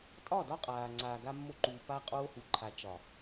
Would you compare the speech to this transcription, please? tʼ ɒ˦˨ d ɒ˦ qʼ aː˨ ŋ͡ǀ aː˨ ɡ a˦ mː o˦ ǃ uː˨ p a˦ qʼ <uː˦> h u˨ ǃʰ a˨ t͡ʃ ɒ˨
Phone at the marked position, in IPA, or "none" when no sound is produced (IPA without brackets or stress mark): oː˦